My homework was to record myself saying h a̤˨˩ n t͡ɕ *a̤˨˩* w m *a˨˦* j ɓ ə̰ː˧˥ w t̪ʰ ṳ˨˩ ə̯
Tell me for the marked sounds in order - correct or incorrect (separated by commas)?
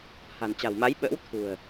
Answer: correct, correct